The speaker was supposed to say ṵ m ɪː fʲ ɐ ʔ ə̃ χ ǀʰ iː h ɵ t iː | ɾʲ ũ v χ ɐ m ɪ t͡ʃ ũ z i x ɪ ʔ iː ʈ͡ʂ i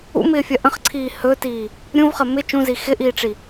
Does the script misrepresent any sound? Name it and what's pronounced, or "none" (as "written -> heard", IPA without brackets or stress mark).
none